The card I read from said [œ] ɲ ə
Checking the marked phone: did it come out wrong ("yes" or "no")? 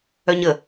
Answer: no